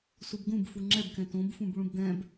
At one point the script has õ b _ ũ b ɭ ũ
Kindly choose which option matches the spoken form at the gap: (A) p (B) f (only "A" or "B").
B